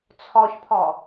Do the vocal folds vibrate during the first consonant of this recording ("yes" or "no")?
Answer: no